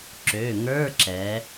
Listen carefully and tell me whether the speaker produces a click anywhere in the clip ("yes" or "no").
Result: yes